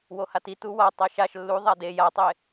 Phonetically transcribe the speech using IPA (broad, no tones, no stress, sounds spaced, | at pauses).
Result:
w o h a t i t u w a tˤ a ʃ a ʃ lː u ðˤ a d e j a tˤ e